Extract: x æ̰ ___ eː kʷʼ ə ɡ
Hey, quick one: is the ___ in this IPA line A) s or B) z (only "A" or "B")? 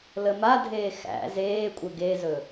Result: B